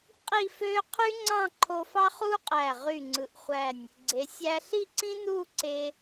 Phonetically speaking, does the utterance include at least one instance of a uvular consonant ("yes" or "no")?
yes